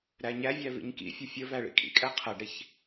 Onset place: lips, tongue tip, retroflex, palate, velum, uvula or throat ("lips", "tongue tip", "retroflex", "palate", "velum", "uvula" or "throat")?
tongue tip